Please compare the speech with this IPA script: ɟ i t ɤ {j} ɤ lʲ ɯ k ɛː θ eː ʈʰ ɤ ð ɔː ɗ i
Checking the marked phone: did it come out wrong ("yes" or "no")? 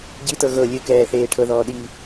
yes